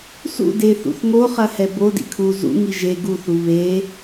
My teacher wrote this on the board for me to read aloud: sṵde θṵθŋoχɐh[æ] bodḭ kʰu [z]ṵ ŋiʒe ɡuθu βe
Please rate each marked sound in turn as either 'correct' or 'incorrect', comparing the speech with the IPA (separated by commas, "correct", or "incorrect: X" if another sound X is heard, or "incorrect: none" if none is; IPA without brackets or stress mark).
incorrect: ɛ, correct